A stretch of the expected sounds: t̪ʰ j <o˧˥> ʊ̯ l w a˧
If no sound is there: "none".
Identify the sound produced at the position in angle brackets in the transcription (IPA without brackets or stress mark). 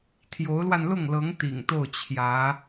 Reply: o˧˥